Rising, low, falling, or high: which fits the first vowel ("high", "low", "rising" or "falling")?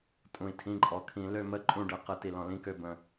low